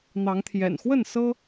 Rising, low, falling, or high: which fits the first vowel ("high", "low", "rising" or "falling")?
rising